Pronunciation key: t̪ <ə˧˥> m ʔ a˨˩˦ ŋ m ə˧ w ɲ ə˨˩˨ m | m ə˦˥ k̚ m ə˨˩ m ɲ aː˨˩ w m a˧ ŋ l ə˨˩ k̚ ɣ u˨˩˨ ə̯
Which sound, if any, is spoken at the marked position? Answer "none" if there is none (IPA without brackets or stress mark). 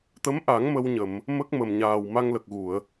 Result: ə˧˥